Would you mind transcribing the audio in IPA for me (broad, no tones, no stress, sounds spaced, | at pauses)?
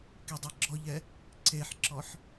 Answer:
k i dˤ e ɡ͡ǁ ɔ ʎ ɛ | ǀ e ħ ǁ ɔ ħ